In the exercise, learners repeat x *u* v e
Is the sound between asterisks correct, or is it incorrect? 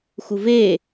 correct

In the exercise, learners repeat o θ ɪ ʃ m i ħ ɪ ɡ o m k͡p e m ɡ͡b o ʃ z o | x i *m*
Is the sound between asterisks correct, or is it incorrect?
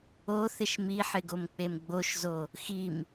correct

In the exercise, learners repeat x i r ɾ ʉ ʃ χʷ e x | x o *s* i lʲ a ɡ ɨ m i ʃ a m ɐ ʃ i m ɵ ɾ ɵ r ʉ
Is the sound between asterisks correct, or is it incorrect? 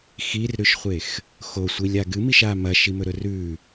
incorrect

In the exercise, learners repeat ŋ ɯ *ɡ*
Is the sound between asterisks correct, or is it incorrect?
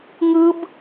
incorrect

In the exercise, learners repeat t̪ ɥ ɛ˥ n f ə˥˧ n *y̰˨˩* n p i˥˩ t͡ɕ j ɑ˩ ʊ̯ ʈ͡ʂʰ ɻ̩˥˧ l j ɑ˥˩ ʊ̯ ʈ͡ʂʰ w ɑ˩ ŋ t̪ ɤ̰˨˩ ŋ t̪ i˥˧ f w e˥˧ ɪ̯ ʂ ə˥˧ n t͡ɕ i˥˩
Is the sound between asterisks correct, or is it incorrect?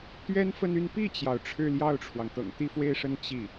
incorrect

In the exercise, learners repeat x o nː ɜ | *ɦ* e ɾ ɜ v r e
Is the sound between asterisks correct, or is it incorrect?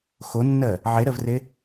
incorrect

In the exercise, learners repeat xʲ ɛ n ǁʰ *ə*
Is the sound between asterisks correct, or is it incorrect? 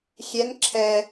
incorrect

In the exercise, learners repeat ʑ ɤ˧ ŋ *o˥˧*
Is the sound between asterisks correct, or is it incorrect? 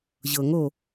correct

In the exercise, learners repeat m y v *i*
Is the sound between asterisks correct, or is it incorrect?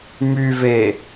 incorrect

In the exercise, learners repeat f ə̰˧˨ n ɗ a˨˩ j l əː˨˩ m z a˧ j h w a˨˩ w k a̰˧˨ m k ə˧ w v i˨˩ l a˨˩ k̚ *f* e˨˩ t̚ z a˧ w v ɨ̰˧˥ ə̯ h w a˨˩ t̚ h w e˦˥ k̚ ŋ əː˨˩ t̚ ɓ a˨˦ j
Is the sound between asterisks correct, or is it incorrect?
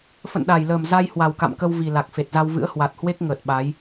correct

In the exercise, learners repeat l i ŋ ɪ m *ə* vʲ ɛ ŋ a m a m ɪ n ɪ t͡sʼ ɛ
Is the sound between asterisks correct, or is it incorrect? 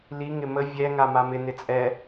correct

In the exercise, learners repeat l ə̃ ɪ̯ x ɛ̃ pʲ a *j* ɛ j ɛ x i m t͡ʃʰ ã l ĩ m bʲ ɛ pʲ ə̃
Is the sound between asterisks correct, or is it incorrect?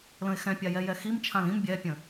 correct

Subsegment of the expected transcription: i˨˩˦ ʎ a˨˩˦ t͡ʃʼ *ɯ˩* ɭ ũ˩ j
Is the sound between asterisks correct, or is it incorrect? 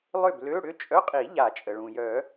incorrect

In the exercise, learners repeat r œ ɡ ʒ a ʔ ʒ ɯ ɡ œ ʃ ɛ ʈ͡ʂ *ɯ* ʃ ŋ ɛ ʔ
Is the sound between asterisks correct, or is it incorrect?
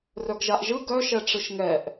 correct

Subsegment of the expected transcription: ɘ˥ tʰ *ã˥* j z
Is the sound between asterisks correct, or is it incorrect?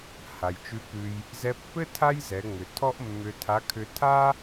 incorrect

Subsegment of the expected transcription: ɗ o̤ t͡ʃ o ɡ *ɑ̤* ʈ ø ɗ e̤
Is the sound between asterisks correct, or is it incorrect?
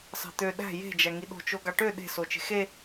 incorrect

